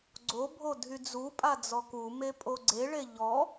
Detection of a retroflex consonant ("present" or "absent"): present